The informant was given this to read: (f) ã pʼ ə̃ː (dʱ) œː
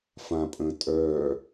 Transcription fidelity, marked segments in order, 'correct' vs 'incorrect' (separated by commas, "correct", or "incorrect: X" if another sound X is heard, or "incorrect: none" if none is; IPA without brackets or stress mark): correct, incorrect: tʼ